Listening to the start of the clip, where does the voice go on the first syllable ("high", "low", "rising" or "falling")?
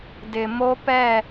low